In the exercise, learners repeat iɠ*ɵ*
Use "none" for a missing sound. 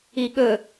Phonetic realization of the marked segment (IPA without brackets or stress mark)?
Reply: ɵ